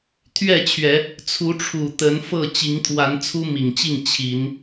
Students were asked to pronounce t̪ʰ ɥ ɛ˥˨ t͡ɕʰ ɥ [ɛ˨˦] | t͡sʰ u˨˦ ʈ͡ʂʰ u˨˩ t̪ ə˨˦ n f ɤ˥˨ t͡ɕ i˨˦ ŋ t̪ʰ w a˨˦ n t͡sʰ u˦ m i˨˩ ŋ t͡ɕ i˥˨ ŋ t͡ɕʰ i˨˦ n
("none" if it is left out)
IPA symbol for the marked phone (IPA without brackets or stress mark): ɛ˨˦